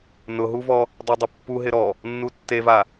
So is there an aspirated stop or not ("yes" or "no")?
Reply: no